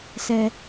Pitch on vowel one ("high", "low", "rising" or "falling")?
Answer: low